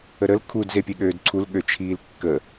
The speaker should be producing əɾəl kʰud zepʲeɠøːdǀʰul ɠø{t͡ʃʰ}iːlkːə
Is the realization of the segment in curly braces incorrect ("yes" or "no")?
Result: no